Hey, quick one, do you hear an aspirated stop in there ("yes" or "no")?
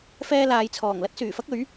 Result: yes